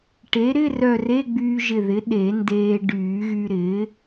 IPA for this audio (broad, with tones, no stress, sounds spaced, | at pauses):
ʈ e˩˥ ɾ ɪ˧˥˧ r œ˧˩ r e˧˥˧ ɡ͡b yː˧ ʒ ɪ˧˩ ð ɪ˩˥ ɗ e˨˩˦ n d eː˧ ɖ yː˨˩˦ ɣ y˧ ɾ ɪː˩˥